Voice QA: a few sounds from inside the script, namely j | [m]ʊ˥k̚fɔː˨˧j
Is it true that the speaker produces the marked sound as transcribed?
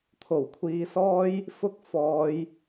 no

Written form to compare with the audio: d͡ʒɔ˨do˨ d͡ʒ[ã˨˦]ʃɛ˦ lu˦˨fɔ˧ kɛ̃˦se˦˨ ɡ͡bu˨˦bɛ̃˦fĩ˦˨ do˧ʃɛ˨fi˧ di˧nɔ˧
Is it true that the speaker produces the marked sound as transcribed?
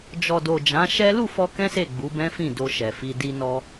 yes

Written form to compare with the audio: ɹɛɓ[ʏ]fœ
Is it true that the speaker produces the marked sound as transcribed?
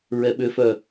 yes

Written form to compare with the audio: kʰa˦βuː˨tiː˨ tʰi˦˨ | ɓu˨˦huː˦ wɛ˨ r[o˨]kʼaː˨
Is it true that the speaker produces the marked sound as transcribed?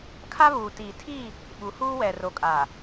yes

